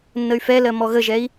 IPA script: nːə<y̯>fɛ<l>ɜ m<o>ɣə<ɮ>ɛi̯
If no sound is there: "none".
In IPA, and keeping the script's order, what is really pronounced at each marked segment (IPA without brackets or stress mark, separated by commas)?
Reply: y̯, l, ɔ, ʒ